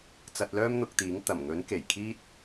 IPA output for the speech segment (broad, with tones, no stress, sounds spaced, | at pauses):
t͡s ɐ˧ t̚ l œː˥ m n̪ ʊ˧ k̚ t̪ iː˨˥ ŋ t̪ ɐ˨˩ m ŋ ɵ˨˥ n k e˨˩ j kʰ iː˥ t̚